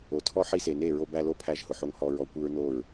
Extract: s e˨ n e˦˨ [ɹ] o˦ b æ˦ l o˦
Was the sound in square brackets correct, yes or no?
yes